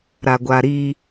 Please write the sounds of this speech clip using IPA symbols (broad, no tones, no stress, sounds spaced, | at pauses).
ɾ a ɡʷ a ɾ i